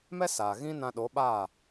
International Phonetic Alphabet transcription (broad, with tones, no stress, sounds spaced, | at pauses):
m ɛ˦ s aː˨ ɣ ĩ˦ n ã˧ ɗ o˨˦ ɓ aː˦˨